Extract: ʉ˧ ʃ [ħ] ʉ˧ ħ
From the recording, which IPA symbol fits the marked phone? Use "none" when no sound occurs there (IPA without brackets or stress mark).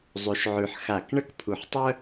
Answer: ʕ